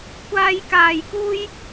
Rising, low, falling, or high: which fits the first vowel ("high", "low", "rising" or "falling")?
high